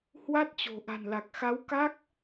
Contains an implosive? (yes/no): no